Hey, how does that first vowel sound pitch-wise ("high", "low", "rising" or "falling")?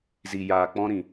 low